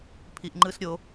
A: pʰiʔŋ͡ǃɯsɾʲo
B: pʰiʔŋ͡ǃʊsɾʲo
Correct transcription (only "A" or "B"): A